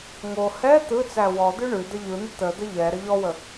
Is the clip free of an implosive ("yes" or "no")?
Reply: yes